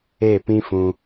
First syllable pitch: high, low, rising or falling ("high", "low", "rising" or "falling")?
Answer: falling